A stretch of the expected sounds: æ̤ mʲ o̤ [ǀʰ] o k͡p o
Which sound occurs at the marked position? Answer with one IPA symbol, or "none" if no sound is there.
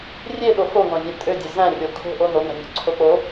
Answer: ǀʰ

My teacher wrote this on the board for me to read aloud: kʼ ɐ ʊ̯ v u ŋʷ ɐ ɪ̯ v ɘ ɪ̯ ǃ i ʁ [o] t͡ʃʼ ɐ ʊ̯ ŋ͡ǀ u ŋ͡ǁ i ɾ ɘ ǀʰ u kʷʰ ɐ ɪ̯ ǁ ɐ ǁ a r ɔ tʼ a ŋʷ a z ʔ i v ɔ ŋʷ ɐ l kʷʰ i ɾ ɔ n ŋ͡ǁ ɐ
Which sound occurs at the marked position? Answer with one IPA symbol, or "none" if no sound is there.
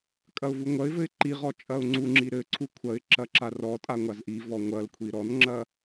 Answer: ɔ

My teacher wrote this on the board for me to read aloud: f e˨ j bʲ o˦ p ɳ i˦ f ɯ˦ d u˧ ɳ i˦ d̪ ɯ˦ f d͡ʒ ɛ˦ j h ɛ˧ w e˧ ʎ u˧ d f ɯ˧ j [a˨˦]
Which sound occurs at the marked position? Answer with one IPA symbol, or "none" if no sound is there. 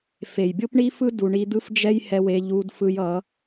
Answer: ʌ˨˦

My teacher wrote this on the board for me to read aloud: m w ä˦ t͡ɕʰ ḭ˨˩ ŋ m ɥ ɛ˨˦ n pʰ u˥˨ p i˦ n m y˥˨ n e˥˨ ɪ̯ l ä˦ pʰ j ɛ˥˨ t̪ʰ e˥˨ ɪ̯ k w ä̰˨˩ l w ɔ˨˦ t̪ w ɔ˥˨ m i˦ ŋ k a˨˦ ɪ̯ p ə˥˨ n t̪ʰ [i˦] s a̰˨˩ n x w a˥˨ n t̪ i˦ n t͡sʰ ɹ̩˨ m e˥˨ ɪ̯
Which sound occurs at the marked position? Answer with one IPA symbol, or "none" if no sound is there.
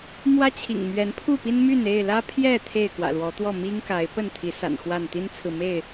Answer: i˨˦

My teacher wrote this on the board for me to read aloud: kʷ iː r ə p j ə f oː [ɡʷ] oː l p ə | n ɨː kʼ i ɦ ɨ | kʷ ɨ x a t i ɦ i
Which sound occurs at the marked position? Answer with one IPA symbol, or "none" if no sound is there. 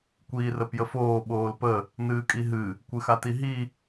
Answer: ɓ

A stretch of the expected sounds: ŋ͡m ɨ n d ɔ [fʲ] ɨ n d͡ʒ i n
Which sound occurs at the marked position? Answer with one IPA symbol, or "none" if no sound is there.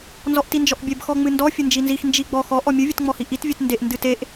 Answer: fʲ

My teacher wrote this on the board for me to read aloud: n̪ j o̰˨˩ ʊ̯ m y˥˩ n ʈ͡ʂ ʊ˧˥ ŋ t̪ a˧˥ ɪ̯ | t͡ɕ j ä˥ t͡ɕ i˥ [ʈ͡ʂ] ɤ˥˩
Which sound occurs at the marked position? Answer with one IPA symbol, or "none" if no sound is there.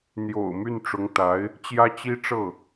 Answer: ʈ͡ʂ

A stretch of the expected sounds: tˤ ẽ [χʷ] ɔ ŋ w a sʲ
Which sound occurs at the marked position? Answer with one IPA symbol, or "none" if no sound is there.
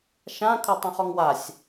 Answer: χ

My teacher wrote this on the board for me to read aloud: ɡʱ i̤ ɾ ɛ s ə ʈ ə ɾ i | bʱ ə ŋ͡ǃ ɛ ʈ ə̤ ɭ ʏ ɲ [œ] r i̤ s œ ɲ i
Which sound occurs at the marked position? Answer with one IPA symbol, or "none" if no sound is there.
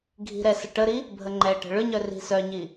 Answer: œ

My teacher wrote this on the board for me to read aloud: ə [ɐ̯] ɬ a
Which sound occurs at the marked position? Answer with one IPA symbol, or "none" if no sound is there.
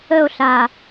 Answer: o̯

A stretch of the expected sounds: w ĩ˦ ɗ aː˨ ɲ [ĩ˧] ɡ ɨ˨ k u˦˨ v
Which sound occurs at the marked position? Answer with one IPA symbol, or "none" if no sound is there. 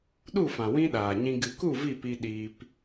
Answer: ĩ˧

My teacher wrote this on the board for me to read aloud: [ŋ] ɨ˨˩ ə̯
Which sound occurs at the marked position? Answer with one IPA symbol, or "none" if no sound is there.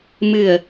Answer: m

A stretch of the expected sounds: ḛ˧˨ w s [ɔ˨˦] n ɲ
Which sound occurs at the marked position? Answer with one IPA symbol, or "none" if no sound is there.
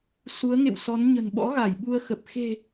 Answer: ɔ˨˦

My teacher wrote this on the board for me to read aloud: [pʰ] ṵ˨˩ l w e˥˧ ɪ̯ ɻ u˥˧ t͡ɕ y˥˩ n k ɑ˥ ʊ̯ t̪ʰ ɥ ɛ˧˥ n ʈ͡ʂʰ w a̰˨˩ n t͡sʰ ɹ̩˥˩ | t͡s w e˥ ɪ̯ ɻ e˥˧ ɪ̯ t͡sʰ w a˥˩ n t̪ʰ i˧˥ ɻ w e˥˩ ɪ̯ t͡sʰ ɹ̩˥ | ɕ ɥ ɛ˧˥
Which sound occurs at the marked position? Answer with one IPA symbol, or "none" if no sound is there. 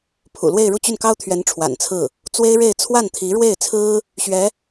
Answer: pʰ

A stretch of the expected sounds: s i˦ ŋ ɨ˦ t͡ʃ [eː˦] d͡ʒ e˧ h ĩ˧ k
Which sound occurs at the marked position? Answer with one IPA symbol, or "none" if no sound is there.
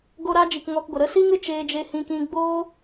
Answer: eː˧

